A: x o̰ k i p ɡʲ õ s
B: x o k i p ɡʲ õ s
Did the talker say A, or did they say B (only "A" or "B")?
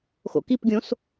A